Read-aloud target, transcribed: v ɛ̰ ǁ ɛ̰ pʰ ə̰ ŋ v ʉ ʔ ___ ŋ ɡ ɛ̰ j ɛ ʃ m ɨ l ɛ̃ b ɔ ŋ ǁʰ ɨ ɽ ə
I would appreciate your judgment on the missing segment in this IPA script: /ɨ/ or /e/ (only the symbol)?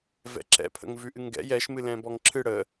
ɨ